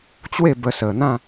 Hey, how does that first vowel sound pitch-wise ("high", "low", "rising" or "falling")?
falling